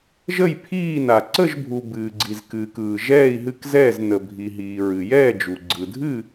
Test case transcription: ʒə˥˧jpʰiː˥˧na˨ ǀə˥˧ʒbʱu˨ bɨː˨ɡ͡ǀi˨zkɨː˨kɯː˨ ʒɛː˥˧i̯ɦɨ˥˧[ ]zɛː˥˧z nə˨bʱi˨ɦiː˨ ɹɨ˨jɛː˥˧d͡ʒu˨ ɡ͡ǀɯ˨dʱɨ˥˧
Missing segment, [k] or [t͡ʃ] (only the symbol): k